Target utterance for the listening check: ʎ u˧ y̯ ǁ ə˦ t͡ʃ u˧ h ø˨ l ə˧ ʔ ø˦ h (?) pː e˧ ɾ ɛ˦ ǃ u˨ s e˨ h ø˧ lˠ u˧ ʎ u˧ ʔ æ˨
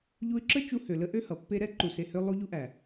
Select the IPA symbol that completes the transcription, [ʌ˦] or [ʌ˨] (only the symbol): ʌ˨